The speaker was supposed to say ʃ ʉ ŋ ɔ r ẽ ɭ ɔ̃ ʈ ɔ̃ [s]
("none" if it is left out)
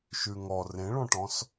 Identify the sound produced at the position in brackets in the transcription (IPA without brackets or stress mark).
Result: s